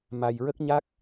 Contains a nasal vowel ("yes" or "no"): no